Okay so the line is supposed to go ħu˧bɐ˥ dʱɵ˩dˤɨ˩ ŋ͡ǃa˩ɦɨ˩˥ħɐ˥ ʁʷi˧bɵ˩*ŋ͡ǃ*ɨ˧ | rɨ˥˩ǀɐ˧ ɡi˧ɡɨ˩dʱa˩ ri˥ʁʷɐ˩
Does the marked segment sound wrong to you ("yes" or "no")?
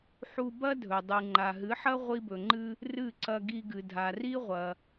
no